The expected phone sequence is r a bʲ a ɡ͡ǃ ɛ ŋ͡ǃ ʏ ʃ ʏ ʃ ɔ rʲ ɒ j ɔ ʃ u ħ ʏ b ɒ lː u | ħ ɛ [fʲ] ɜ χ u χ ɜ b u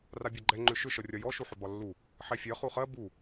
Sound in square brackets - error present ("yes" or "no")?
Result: no